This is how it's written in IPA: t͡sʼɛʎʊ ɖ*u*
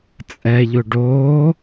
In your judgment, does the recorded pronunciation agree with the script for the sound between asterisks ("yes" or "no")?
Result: no